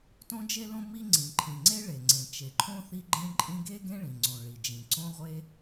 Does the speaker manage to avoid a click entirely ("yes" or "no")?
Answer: no